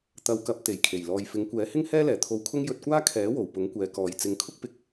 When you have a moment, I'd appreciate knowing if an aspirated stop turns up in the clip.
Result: yes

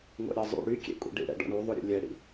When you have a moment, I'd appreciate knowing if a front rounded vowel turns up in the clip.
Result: yes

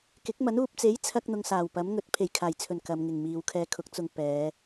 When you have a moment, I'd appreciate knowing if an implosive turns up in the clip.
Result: no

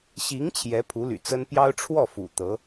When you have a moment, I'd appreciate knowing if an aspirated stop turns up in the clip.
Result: yes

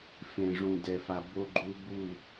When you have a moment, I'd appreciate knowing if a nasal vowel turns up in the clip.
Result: yes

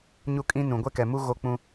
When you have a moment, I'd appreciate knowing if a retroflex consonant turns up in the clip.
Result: no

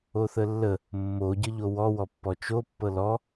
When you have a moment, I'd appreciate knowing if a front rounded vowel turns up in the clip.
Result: no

